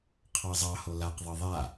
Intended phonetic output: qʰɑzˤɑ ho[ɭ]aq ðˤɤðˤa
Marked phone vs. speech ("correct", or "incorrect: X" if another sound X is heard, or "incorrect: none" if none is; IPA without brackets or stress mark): incorrect: l